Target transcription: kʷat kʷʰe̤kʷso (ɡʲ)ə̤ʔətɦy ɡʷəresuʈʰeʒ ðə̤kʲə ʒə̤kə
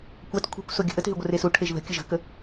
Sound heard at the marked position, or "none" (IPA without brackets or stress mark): ɡʲ